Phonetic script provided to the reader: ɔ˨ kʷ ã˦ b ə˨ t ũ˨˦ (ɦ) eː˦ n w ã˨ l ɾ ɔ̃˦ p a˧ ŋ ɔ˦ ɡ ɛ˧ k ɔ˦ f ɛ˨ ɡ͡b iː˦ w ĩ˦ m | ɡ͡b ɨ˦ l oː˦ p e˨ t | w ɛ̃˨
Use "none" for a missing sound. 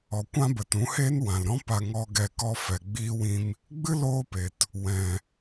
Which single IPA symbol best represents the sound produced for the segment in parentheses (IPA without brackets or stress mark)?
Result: h